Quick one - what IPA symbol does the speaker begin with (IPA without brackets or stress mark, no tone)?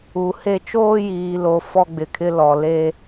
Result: u